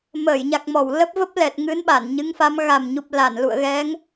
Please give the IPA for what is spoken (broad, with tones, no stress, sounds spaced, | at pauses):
m əː˧˩ j ɲ a˨˩ k̚ m ɔ˧˩ w l ə˦˥ p̚ v ə˦˥ p̚ l ɛ˨˩ t̚ ŋ ɨ˨˦ n ɓ a˧˩ n ɲ ɨ˨˦ ŋ f a˨˦ m ɣ a˨˩ m ɲ u˨˩ p̚ l a˧˩ n l ṵ˧˨ ə̯ ɣ ɛ˨˦ ŋ